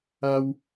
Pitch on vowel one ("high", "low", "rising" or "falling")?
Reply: high